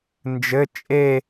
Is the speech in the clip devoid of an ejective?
no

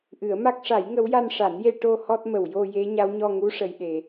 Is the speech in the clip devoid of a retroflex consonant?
no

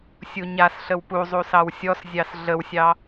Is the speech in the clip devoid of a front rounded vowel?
yes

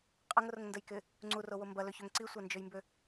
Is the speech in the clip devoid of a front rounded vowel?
no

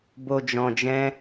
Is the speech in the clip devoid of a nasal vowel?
no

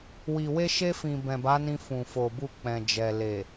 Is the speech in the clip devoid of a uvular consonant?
yes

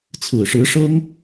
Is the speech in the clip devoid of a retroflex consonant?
no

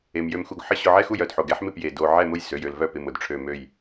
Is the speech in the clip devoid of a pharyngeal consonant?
no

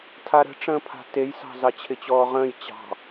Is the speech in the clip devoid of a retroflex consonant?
no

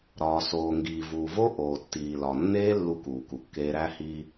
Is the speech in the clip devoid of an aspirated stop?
yes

